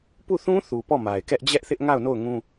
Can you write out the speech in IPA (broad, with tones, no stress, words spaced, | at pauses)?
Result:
pu˦˨θũ˦θu˨ pɔ˦˨ma˨ɪ̯kɛ˦ʔ d͡ʑɛ˦ʔθɪ˦ʔ ŋa˦˨ʊ̯no˦˨ʊ̯ŋũ˦